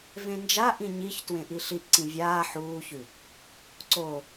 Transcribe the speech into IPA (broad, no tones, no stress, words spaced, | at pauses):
vẽnd͡ʒaʔĩ ɲiç twẽʔiɬiʔǀĩ vʲaː ħuːçʉ | ǀo